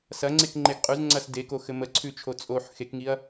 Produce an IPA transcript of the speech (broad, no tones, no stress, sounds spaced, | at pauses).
s ɐ ŋ͡ǀ e k ŋ͡ǃ e ɡ qʼ ʉ z ŋ͡ǀ ɐ s d e k o x ɘ m ə ǀʰ ʉ t͡ʃʰ o t͡sʼ o ħ x e k ŋ i ɐ̯